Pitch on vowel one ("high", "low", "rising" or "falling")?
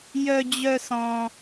high